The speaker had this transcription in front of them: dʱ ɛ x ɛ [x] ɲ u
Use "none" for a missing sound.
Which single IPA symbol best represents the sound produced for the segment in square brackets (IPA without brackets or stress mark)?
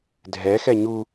none